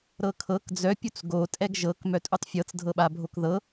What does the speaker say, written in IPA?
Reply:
ɾ ɤ kʰ ɤ k d͡z œ pʲ u t͡s ɡ o tʼ ɛ ɡ ʒ ɤ k m œ tʼ u tˤ fʲ ɤ t͡s dʱ ɤ ɓ a bʱ o k ð ɤ

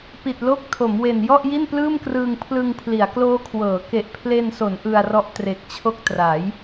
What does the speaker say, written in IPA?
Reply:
p i˨˩ t̚ l o˦˥ k̚ tʰ o˩˦ m w e˨˩ n j ɔ˥˩ ʔ j i˥˩ n p l ɯː˥˩ m k r ɯː˧ ŋ pʰ l ɯ˧ ŋ pʰ l i˩˦ a̯ k l oː˦˥ kʰ w ɤː˩˦ k e˨˩ ʔ pʰ l e˧ n s o˩˦ n ʔ ɯ˧ a̯ r ɔ˦˥ ʔ t r e˨˩ k̚ t͡ɕʰ o˥˩ k̚ t r a˩˦ j

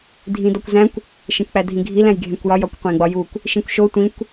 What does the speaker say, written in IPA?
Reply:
dʱ ĩ d ɒ kʷ z æ̃ kʷ | ʃ ẽ kʷ k͡p æ dʱ ĩ ɡʱ i l æ̃ j ɡʱ ẽ kʷ j ɒ j ɒ kʷ qʷ ẽ ɡ͡b ɒ j u kʷ | ʃ ĩ kʷ ʃ o tʷ ĩ kʷ

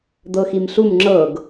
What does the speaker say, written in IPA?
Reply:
d̪ ɤ x i m ɬ u m ŋ͡ǁ ɤ ɡ

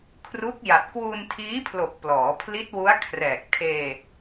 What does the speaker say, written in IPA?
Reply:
kʰ r u˦˥ k̚ j a˨˩ t̚ k w u˧ n tʰ iː˦˥ pʰ l o˨˩ k̚ p l ɔː˩˦ pʰ l i˦˥ t̚ w u˦˥ a̯ kʰ r ɛː˨˩ k̚ tʰ eː˧

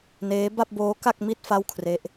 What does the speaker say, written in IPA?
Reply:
n eː˦˥ b a˥˩ p̚ b oː˦˥ k a˥˩ k̚ m i˥˩ t̚ f a˥˩ w kʰ r e˦˥ ʔ

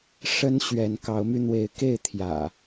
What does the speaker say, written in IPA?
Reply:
ʂ ə˦ n ɕ ɥ ɛ˨˦ n k ɑ˨˦ ʊ̯ m y˧ n̪ w e˨˦ ɪ̯ k e˥˨ ɪ̯ t̪ʰ j ä̰˨˩

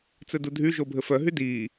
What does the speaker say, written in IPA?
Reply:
t͡s ɘ d u dʱ y ʒ o bʱ ɘ f œ ɦ y d iː

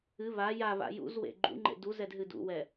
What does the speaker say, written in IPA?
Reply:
ɨ β a j a β a̰ j ṵ z w ḛ ɡ͡ǃ ṵ ŋ͡ǃ ḛ d u z ɛ d ɦ ɨ d ṵ w ɛ

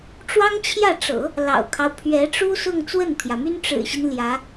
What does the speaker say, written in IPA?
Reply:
ʈ͡ʂ w ɑ˥ ŋ t͡ɕʰ j ä˥˩ ʈ͡ʂ ɤ̰˨˩˦ | l ɑ̰˨˩ ʊ̯ kʰ ɑ˦ ʊ̯ pʰ ɥ ɛ˧˥ ʈ͡ʂ u˥ s ʊ˥˧ ŋ t͡s w ə˥˩ n t̪ʰ j ä˩ m y˥ n ʈ͡ʂ ɻ̩˨˩ ɕ i˦ n l j ä˧˥

